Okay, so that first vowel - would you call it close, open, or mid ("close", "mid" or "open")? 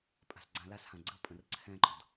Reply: open